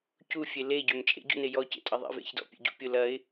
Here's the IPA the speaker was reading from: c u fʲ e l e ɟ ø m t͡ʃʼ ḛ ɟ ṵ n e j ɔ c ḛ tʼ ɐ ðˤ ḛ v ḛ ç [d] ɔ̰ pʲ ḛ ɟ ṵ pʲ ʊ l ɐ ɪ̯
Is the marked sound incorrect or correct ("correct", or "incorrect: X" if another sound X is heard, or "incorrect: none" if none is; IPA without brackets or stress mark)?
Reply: correct